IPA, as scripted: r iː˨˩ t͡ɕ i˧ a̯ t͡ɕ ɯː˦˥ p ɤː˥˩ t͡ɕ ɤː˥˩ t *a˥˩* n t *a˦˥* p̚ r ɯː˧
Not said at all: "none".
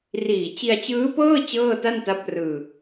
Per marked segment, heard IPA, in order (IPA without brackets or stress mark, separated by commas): a˥˩, a˦˥